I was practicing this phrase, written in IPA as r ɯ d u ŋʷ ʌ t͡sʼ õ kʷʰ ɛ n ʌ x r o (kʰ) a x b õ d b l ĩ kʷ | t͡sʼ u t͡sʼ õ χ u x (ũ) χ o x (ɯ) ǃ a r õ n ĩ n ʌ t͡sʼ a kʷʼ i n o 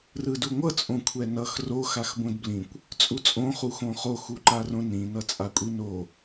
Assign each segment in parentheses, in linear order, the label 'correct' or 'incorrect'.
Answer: incorrect, incorrect, incorrect

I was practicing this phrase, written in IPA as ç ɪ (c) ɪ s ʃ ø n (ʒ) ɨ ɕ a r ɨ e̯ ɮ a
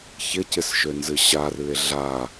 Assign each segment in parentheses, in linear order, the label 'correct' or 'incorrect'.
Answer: correct, incorrect

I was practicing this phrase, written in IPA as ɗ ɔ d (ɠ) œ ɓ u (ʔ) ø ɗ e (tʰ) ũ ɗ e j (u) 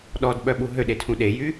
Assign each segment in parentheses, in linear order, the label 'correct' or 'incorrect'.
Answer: incorrect, incorrect, correct, incorrect

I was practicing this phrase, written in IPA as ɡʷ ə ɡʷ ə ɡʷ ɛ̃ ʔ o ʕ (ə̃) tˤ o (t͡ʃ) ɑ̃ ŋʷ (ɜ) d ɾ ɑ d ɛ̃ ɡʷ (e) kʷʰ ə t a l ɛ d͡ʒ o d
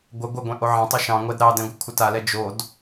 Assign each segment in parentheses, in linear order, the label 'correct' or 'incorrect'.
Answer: incorrect, incorrect, incorrect, incorrect

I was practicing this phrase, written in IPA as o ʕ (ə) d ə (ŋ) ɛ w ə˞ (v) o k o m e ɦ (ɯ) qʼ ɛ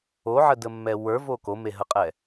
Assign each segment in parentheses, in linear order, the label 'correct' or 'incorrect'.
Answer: correct, incorrect, correct, incorrect

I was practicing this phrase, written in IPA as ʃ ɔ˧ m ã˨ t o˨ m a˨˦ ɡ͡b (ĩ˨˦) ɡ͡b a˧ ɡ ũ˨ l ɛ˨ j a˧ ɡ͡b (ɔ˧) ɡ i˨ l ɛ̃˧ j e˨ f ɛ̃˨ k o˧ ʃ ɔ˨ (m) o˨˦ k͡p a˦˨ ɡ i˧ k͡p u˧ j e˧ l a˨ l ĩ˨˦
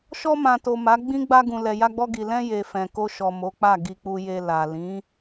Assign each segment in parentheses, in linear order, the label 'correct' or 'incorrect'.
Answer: incorrect, correct, correct

